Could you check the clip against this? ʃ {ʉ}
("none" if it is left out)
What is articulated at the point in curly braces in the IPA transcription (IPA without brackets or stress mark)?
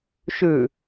ʉ